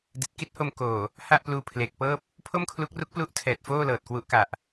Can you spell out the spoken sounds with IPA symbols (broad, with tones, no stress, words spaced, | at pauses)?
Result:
di˨˩t̚ki˥˩t̚ho˧m koː˨˩ | ha˥˩ʔpluː˧ pʰleː˨˩k̚pɤː˥˩p̚ | pʰo˥˩mkʰlu˦˥k̚ru˦˥k̚ plu˥˩ʔtʰɛː˨˩t̚foː˥˩ lɤː˨˩t̚kwu˦˥ʔka˨˩ʔ